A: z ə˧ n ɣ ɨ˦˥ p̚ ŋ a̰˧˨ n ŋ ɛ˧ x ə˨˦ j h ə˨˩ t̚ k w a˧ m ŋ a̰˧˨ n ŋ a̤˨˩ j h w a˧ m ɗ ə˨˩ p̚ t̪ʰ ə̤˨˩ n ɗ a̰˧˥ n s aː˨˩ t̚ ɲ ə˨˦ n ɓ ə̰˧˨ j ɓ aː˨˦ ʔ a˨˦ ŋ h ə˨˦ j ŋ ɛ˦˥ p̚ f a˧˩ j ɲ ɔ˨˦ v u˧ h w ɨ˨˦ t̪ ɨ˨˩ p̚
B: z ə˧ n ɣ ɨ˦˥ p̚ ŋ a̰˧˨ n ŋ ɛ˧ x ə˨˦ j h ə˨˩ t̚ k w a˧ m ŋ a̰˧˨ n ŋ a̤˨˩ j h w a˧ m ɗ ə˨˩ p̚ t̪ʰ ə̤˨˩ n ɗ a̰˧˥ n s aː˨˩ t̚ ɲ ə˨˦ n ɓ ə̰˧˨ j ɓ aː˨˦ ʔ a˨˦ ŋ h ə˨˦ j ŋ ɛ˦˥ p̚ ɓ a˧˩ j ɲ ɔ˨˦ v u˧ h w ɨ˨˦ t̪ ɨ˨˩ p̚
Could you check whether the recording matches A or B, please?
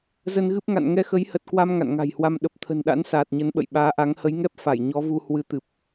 A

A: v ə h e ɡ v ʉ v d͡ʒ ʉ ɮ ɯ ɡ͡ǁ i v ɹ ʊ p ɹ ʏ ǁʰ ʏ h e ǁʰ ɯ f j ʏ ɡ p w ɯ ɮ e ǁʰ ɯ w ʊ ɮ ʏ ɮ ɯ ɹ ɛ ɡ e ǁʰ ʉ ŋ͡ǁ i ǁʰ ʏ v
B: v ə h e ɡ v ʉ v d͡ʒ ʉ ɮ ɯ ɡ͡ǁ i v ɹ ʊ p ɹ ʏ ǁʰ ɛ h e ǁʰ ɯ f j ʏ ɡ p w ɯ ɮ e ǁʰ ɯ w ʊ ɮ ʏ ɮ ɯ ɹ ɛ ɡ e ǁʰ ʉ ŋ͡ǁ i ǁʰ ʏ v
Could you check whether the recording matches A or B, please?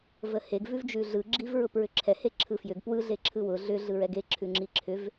B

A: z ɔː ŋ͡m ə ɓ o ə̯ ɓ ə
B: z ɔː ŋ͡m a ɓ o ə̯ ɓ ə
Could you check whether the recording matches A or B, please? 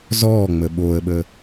A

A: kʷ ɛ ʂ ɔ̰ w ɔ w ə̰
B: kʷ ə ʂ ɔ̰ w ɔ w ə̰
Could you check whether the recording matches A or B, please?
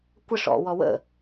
B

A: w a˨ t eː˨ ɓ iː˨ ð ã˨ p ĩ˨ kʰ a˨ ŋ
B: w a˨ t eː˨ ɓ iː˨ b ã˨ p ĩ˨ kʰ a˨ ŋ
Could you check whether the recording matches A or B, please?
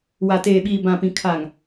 B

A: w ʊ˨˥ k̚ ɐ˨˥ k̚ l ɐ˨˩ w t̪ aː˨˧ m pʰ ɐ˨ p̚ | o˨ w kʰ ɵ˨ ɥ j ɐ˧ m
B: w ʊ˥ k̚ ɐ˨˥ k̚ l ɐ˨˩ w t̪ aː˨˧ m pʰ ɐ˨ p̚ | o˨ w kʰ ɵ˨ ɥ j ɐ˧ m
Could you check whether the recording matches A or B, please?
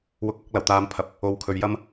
A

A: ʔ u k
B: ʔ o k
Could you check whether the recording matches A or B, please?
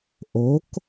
B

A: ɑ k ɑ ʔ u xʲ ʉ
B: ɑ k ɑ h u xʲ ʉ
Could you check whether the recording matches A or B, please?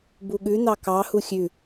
B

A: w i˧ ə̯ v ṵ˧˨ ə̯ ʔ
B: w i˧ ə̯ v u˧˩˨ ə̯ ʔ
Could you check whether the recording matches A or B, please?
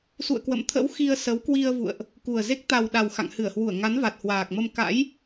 A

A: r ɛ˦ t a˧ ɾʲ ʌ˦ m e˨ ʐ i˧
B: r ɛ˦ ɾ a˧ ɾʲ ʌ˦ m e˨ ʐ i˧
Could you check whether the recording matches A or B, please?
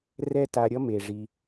A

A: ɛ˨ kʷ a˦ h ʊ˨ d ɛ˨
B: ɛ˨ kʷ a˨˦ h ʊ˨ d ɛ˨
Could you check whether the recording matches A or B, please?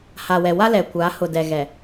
B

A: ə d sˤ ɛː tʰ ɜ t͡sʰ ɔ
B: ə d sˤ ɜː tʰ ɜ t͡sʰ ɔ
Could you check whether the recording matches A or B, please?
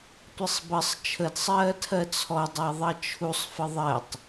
B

